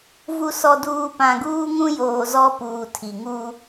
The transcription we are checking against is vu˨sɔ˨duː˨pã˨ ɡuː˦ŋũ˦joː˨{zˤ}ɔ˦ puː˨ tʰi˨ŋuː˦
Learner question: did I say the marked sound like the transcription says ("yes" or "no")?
no